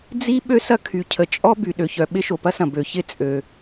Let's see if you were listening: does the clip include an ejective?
yes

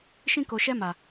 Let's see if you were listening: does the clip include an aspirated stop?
no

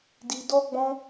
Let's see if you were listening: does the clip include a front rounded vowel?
no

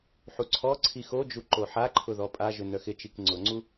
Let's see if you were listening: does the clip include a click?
yes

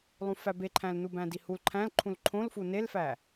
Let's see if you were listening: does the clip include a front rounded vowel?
no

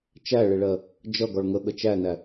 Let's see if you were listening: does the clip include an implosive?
yes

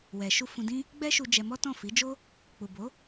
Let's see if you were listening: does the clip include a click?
no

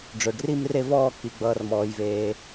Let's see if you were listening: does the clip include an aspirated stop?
no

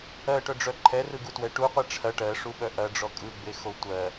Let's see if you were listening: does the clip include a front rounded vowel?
yes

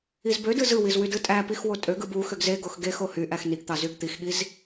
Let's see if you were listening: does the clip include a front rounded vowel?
yes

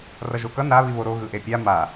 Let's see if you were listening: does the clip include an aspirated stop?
no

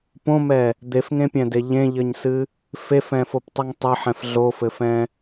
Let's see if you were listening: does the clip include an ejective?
no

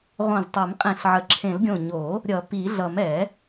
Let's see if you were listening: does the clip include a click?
yes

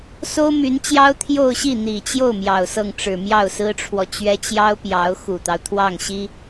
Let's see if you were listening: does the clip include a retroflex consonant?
yes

